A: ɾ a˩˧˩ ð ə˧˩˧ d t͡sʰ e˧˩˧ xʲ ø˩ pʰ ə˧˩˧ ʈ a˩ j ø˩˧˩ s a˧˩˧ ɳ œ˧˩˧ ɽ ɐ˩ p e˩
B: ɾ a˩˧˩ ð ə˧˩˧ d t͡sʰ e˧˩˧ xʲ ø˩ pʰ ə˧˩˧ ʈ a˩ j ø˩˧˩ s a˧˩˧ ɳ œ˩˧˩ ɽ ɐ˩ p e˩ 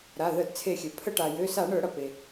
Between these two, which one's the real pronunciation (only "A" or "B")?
A